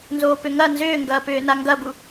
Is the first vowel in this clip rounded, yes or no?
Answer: yes